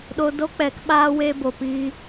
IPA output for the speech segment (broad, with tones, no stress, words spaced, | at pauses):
ɗo˧do˦k͡pɛ˨˦k ɓaː˦we˦ bo˧piː˦